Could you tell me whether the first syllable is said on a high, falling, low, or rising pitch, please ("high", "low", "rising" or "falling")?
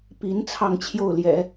rising